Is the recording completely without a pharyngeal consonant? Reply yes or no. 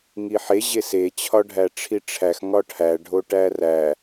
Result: no